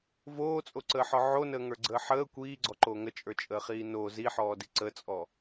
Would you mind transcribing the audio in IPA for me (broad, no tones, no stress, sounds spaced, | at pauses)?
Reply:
v oː t͡sʼ o ǀ əː ħ ɔ ʕ o n əː ŋ ə˞ ɡ͡ǀ əː ħ əː kʷ iː ɡ͡ǀ ɔ ǃ o ŋ ə t͡ʃʼ ə˞ t͡ʃʼ əː χ iː n o z i ħ ɔː d i ǀ ə t͡sʼ ɔ